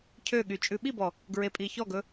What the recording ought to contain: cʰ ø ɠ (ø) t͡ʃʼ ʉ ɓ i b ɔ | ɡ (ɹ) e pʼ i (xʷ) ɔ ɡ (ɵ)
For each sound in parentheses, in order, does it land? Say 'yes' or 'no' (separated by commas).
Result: no, yes, no, yes